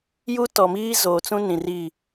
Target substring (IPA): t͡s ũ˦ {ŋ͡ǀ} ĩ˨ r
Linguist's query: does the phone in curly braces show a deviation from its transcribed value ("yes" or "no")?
yes